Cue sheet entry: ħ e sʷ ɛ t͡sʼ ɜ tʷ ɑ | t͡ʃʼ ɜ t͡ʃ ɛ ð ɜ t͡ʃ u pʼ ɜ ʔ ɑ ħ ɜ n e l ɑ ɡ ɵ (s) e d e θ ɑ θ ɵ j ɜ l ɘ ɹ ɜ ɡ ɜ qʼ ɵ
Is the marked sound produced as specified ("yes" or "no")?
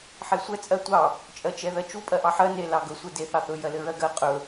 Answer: no